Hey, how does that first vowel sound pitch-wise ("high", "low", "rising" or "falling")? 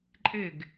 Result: falling